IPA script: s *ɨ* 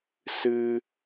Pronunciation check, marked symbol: correct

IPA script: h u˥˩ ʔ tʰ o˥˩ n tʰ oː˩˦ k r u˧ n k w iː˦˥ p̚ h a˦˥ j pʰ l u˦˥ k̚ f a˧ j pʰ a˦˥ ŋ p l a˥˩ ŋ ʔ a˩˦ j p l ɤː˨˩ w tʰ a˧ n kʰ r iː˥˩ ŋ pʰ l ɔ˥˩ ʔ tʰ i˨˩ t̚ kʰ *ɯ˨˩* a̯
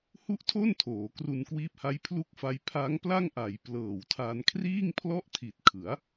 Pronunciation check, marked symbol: incorrect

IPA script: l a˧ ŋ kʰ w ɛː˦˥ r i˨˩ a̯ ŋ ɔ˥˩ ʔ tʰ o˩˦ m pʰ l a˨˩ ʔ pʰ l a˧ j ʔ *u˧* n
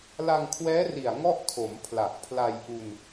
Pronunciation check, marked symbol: correct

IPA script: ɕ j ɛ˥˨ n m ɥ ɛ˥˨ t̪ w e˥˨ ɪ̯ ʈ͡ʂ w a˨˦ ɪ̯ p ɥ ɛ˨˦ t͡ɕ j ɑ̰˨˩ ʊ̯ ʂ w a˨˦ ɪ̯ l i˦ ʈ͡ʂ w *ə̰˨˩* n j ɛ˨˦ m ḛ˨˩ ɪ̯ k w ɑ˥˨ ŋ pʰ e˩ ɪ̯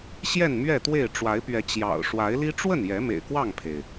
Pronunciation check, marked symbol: incorrect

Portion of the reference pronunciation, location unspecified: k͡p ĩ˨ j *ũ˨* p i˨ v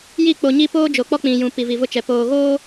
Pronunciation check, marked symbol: correct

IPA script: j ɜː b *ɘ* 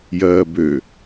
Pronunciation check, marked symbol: incorrect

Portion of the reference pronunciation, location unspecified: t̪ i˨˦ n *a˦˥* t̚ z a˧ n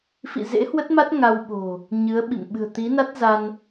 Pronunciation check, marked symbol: correct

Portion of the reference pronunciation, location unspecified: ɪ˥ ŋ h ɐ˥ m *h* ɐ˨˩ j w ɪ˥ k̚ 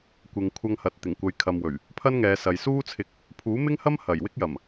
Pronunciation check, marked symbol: correct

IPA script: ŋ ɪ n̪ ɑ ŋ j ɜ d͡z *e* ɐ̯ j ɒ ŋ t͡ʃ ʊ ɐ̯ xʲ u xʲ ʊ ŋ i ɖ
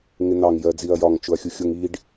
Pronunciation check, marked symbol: incorrect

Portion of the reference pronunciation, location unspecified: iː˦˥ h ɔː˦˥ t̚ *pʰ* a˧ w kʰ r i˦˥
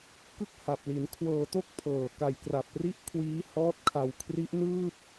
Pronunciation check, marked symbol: incorrect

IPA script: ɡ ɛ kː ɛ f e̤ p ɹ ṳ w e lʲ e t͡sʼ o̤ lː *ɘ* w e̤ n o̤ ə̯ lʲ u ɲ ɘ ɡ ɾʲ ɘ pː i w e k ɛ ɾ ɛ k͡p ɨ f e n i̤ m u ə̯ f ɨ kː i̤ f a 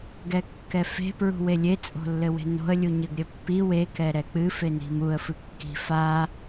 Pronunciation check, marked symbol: correct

